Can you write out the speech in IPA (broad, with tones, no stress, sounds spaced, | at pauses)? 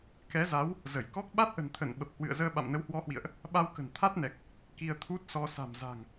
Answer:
k ɛ˨˦ z a˨˦ w | z ə˧˩ j k ɔ˦˥ k̚ ɓ a˦˥ t̚ ʔ ə̤˨˩ n t̪ʰ ə˧˩ n ɓ ə˨˩ p̚ h w ɨ̰˧˨ ə̯ z əː˧ ɓ a̰˧˨ m n ə˨˦ w h w ɔ˨˦ h w ḭ˧˨ ə̯ ʔ | ɓ a˧ w k ə̤˨˩ n t̪ʰ a˦˥ t̚ n ɛ˨˩ k̚ | k i˧ ə̯ t̪ʰ u˦˥ t̚ s ɔ˧ s a̤˨˩ m z a̤˨˩ ŋ